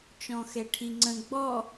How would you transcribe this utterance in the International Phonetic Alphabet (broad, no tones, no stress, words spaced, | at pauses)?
t͡ʃɔ̃xɛʈʰiŋ͡ǀə̃ ɡ͡bɔ